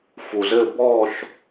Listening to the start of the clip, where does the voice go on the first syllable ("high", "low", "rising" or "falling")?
low